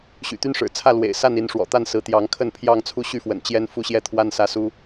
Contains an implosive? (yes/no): no